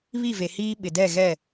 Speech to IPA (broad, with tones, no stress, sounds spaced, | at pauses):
β i˦˨ v e˨ h iː˦ ɓ ɪ˨ d ɛ˦˨ ɣ ɛ˦˨